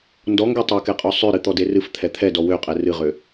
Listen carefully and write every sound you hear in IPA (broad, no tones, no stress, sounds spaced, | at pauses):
n d ɔ ŋ ɡ ɛ tˤ ɛ k ɛ qʼ ɔ sˤ ø ɾ ɨ t̪ ɔ d e r ɨ f t̪ʰ ɛ t̪ʰ ɛ d ɔ w ø qʼ ɛ r ɨ ʁ ø